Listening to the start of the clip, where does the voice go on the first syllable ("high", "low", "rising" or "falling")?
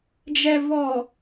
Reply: low